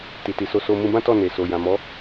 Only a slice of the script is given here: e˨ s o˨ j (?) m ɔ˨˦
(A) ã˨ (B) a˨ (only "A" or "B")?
A